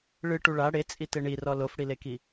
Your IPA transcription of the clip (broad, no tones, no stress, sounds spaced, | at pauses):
ɭ ɨ ʈ u ɭ a ɽ e t͡sʼ i t e ɳ i r ɔ l o f ɽ i l e k i